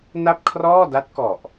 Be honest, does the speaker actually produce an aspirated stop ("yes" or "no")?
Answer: yes